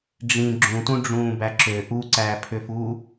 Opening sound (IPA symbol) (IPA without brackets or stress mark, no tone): ɖ͡ʐ